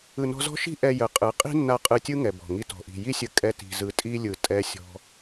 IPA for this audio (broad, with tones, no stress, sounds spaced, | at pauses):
ɯ˨ n ɔ̤˧ z ɔ̤˦ ʃ i̤˦ ʔ ɛ˧ j ə˨ qʼ ɯ˨˦ qʼ i̤˦ nː a˧ qʼ ɯ˧ tʲ ɯ˦ ŋ ɛ˨ b ɔ̤˨ ŋ i˦ t ɔ̤˧ ʔ i̤˧ j i˦ sʲ ə˧ kʼ ɛ˧ t i̤˨ z ɯ˨ tʼ i˦ lʲ ɯ˨ tʼ ɛ˦ sʲ ɔ̤˦